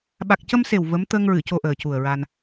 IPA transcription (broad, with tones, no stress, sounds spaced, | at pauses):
ɓ a˨˩ k̚ c ə˧ m s e˨˩ w v ə˧˥ m t̪ ə˧ ŋ ɹ ɨ˨˩˨ c o˧ ʔ əː˨˩ c u˨˩ ə̯ ɹ a˧ n